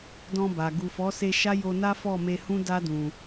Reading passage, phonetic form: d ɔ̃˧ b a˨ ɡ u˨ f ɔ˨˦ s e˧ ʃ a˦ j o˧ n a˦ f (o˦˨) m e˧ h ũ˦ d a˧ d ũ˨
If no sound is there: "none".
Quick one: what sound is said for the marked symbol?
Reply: ɔ˦˨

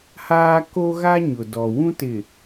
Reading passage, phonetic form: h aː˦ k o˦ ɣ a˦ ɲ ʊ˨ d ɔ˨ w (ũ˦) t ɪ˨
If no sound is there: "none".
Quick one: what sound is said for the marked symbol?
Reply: ũ˦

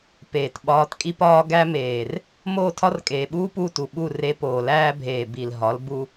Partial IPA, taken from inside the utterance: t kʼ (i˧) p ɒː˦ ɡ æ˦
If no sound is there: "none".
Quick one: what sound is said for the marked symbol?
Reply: i˦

